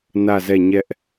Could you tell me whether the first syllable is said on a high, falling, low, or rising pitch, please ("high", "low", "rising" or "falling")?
falling